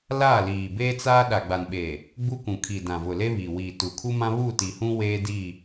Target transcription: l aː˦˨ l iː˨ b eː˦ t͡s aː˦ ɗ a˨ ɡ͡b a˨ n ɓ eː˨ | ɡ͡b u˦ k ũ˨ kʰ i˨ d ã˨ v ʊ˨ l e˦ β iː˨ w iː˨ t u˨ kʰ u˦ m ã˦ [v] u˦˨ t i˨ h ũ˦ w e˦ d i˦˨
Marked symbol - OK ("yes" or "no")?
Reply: no